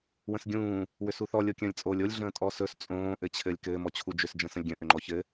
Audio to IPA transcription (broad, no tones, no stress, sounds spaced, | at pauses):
w ə̃ s ɡʲ ũː | w ʏ s u θ ɔ lʲ o kʲ ə̃ː lʲ t͡sʼ oː lʲ o lʲ ɮ ə̃ː tʼ ɔ s ɵ s t͡sʼ õː ʔ ɘ t͡ɕʰ ɘː lʲ k ɘː m ɔ t͡ɕʰ u d͡ʒ ʏ s d͡ʒ ə̃ː s ə̃ lʲ ɡʲ ə̃ ʔ ʏ ŋ͡ǃ ɔ ç ɘ